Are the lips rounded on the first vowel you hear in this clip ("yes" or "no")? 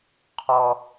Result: yes